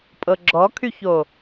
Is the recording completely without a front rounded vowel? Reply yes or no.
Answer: no